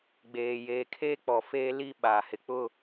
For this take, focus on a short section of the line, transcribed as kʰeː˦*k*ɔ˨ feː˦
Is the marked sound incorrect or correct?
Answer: incorrect